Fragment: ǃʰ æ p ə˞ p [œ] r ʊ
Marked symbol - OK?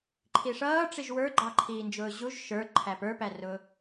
no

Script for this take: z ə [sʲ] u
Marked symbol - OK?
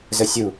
yes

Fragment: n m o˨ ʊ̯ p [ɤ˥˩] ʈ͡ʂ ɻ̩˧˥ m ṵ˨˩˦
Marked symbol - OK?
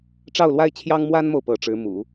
no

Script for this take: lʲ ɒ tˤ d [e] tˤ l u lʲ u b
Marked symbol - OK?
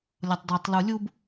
yes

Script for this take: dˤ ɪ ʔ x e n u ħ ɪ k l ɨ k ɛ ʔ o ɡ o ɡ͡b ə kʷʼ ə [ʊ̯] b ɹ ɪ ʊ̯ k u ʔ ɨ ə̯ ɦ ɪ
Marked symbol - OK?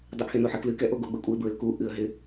no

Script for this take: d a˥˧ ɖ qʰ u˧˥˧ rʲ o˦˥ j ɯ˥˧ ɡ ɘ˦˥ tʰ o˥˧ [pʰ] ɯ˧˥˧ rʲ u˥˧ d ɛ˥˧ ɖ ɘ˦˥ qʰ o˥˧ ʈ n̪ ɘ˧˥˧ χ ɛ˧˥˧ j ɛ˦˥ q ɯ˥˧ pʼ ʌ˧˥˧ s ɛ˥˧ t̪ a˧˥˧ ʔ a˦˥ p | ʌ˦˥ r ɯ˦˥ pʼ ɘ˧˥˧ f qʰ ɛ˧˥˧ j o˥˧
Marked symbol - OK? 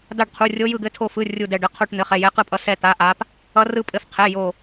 no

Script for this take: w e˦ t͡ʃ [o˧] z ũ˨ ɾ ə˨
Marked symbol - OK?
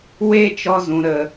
no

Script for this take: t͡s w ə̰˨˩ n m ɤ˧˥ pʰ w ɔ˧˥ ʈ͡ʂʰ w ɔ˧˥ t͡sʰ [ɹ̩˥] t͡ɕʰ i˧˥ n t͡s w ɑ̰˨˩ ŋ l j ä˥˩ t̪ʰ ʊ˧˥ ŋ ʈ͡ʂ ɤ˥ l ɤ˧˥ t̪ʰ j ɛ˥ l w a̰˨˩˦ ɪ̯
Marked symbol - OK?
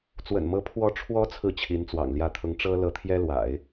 no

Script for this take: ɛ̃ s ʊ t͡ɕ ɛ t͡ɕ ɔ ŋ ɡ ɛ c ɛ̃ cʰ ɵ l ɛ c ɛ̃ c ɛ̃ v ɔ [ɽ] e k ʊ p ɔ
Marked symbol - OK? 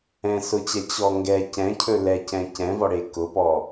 yes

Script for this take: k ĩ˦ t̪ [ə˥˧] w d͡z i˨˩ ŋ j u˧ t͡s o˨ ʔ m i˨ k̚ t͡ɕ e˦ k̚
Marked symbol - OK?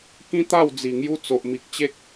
no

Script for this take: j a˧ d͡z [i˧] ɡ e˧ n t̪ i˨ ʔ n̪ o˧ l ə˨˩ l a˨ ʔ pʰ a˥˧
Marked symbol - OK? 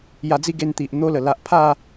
no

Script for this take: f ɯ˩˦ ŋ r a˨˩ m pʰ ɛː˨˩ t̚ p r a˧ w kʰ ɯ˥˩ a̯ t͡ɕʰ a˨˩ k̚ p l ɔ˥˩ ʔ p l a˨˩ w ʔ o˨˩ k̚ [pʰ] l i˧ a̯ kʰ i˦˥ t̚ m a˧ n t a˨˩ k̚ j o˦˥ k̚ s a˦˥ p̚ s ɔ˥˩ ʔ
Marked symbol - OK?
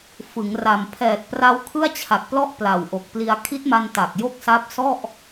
no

